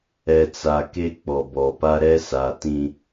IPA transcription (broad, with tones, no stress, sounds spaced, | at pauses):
ɛ˨ t͡s a˨ k e˦ k͡p ɔ˨ b ɔ˨ p a˦ ɾ ɛ˦ s a˨ t ĩ˦